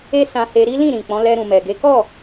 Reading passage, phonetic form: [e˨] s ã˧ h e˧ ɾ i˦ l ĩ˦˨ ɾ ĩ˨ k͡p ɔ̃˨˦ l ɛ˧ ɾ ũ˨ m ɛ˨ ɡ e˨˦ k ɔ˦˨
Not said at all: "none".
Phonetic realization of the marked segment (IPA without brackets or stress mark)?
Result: e˦